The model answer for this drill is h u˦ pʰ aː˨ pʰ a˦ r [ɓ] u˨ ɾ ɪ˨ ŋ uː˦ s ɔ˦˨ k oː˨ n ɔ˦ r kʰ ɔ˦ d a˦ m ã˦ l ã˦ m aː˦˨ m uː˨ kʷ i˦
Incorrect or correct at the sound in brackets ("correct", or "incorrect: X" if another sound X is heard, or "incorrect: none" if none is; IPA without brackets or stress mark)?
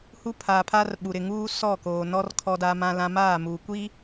correct